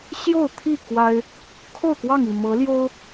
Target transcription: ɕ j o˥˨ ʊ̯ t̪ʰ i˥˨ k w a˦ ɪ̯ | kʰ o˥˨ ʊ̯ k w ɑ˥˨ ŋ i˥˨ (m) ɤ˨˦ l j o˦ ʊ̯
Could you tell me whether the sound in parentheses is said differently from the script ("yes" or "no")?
no